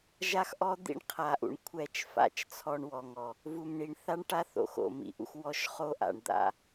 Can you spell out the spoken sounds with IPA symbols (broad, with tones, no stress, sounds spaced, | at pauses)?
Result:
ʒ a˦ x ʔ ɔ˦ d̪ ḭ˦ ɳ qʰ a˨ ʔ ṵ˨ ɳ kʷʰ ɛ˦˨ t͡ʃ f a̰˦˨ t͡ʃ t͡sʰ ɔ˦ ɳ w ɔ˨ ŋ ɔ˨ | v u˨ m ɳ i˨ ɳ θ a˦ ɳ ʈ a˦ θ o̰˨ x o̰˨ m ḭ˨ ʔ ṵ˦ x w ɔ˦ ʃ χ o˦ ʔ a̰˨ ɳ d̪ a̰˦